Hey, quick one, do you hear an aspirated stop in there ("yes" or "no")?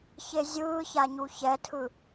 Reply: yes